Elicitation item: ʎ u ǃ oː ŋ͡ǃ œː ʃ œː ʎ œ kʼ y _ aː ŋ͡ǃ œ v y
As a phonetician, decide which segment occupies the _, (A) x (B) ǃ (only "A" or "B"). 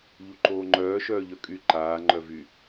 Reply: B